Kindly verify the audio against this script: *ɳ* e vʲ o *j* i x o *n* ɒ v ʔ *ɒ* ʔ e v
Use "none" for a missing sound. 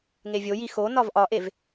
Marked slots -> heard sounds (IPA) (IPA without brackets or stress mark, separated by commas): ŋ, j, n, ɒ